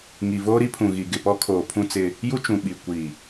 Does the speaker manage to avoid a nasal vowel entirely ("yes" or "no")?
no